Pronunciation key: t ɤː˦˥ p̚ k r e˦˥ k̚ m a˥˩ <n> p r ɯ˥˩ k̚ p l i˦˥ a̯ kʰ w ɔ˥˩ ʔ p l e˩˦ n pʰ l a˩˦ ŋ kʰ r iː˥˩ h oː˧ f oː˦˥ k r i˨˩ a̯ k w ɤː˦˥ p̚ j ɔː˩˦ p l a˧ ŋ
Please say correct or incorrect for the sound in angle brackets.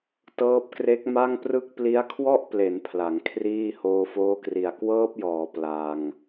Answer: incorrect